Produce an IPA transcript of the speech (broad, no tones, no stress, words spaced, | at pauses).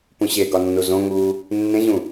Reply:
pũɕeɡɒ nːuzõŋuː | nːẽʑũ